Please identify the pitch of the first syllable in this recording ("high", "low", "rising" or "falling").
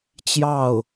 falling